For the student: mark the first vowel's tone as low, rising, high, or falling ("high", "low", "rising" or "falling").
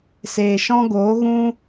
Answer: low